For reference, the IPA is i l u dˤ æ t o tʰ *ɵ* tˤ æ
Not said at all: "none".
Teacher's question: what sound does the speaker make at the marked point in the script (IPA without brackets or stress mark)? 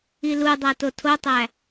o